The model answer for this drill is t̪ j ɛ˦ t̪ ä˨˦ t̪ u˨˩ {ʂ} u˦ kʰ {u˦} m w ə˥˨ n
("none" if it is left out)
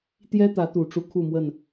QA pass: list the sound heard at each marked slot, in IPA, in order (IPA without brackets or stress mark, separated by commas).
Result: ʈ͡ʂ, u˥˨